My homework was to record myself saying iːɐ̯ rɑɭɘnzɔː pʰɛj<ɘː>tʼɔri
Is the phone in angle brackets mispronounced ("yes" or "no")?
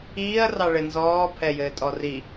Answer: no